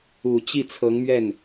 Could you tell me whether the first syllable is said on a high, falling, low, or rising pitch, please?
low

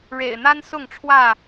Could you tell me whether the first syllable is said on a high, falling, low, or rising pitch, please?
low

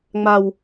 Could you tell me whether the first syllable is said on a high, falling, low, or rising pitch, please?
low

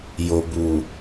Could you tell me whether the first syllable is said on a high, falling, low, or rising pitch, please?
low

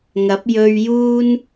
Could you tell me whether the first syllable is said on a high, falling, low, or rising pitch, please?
rising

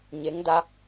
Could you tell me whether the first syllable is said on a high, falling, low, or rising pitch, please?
rising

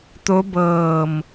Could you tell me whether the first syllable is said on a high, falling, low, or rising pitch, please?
rising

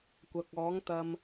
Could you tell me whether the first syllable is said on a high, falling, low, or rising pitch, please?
low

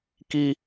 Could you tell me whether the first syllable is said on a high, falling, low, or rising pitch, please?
high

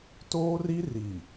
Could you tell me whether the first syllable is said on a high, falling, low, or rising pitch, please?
high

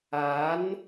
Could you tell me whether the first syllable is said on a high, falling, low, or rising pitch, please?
rising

